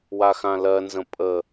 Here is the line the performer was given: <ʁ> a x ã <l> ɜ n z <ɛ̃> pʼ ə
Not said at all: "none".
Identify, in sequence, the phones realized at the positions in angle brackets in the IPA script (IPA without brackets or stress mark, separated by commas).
w, l, ə̃